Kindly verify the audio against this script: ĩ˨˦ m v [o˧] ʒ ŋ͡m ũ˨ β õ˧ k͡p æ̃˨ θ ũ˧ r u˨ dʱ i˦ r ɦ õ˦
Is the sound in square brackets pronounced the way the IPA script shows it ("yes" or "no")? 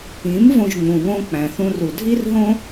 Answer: no